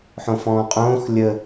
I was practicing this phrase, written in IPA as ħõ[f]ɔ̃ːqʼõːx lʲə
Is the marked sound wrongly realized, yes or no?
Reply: no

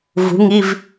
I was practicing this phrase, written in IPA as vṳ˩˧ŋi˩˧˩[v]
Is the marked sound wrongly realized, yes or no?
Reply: no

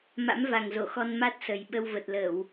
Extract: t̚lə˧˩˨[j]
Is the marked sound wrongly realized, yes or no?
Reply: yes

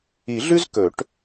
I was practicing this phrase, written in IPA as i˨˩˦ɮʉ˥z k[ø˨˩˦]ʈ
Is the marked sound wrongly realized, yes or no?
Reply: yes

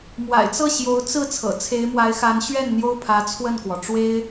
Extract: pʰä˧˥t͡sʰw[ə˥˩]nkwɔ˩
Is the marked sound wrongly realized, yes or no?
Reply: no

